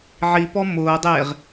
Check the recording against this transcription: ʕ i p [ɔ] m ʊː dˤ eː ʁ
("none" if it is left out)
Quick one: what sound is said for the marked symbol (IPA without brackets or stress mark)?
ɔ